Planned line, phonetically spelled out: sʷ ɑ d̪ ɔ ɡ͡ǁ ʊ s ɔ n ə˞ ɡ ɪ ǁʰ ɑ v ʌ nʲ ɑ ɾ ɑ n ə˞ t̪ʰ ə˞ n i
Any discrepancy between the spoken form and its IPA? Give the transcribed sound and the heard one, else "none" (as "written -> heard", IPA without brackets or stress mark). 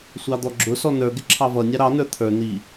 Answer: none